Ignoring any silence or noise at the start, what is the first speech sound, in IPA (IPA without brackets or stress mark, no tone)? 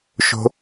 ʃ